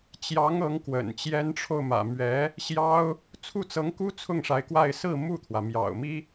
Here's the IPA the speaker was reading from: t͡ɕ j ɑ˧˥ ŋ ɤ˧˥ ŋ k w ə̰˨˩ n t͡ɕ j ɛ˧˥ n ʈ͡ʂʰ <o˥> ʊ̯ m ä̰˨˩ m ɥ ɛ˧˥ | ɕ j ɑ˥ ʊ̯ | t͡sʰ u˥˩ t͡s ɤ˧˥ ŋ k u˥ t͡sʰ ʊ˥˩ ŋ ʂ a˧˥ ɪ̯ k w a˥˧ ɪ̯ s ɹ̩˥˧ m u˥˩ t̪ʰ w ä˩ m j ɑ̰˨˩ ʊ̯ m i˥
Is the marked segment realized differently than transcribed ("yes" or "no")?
yes